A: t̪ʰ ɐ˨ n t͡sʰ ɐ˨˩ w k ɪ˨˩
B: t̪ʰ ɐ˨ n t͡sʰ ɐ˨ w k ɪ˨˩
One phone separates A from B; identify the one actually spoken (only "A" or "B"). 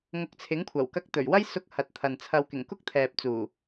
B